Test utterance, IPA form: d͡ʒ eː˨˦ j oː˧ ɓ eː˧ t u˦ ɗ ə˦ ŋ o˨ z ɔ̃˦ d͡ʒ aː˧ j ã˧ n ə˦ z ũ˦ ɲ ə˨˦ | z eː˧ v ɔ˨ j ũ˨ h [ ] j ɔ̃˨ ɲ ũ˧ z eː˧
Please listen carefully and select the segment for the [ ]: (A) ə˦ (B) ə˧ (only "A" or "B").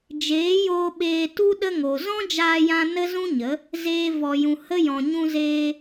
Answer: A